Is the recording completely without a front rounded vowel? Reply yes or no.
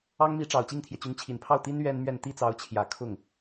no